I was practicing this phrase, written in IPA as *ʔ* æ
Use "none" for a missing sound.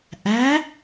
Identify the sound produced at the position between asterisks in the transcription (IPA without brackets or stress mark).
ʔ